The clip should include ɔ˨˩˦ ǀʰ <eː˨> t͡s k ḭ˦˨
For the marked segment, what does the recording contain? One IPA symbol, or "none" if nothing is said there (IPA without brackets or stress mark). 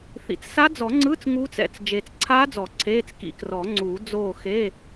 eː˧˥˧